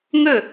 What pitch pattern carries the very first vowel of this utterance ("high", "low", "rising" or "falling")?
falling